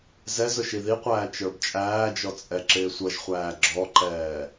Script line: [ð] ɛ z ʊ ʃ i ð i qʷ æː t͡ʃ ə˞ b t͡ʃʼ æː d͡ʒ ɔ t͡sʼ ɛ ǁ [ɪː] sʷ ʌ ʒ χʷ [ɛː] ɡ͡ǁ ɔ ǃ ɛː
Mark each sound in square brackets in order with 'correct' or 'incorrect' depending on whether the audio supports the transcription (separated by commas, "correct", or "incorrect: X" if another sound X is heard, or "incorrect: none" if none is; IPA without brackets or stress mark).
incorrect: z, correct, incorrect: æː